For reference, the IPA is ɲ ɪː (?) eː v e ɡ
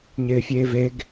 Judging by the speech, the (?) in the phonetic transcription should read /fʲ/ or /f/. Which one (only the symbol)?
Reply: fʲ